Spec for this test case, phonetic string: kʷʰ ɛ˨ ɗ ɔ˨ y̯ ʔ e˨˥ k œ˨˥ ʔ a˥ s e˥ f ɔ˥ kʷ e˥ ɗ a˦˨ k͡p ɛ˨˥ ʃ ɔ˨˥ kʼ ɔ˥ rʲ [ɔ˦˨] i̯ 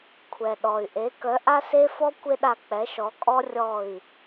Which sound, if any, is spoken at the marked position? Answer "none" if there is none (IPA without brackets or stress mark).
ɔ˦˨